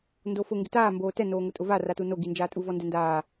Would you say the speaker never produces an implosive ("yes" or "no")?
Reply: yes